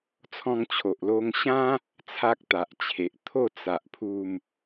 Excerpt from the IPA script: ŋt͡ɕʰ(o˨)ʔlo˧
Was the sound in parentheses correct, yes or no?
yes